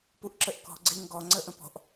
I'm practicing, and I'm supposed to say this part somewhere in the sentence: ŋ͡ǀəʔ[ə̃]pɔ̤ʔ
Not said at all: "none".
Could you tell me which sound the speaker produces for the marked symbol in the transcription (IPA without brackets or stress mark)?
ə̃